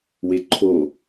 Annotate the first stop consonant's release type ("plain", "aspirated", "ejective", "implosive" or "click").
click